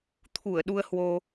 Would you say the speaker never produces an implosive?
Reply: no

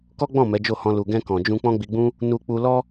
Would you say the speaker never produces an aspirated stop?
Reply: yes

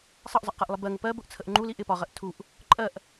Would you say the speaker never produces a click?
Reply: no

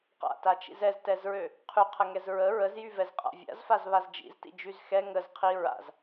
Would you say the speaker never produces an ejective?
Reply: no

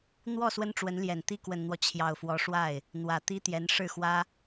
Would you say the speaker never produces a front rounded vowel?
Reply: yes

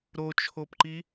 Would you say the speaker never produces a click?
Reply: no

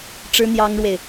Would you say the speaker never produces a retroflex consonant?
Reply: no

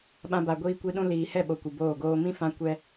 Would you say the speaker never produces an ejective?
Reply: yes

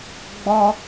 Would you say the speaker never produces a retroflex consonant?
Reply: yes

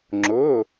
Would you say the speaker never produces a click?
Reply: no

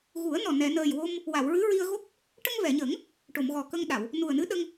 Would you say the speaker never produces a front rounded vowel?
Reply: yes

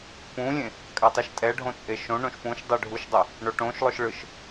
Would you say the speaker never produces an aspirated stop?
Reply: yes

